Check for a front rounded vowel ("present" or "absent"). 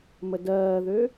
present